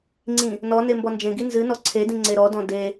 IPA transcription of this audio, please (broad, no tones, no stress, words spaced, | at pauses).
ŋ͡ǀĩ | nɔ nembɔnd͡ʒẽɡi nzɨnɔ ǀʰedĩ ŋ͡ǀeɾɔdɔ̃ de